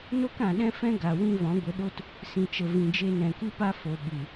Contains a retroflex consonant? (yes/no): no